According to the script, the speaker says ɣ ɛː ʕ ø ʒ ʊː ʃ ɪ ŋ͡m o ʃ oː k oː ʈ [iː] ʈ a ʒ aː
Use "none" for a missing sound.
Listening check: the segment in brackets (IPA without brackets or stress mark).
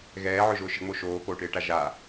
ɪː